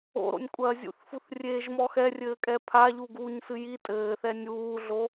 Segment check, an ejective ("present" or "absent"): present